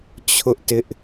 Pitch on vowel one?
high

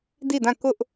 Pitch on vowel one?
falling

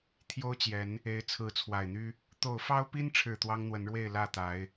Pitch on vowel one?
high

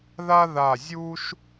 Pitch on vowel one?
high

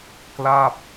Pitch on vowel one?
falling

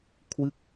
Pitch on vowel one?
falling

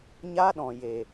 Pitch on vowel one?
high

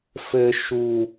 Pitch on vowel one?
low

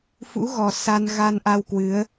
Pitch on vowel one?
rising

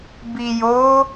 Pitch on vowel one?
low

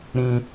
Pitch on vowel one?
high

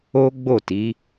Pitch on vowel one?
high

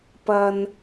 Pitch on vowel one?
low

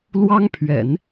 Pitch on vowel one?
high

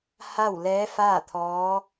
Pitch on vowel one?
falling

